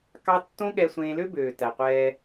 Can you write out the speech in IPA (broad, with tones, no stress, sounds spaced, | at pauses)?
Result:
k ɑ˦ tː õ˦ ɠ ɛ˧ sʷ ẽː˧ l ø˦ b øː˨ t æ˨ qʷ ɛː˧